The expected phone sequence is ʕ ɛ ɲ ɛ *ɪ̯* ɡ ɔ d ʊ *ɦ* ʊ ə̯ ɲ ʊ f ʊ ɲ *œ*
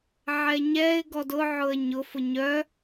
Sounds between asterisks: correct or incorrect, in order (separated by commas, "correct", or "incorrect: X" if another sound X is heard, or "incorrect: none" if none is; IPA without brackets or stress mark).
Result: correct, incorrect: ʕ, correct